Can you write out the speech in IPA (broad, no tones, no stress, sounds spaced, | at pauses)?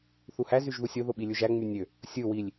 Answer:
θ u h æ z y ʒ ð u sʲ o ð o ɓ i lʲ u ʒ æ ŋ͡m y nʲ ø | sʲ ɯ w i lʲ